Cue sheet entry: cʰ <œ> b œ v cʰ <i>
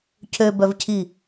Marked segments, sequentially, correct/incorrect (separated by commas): incorrect, correct